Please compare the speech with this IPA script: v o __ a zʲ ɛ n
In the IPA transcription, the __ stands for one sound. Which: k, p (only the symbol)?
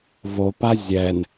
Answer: p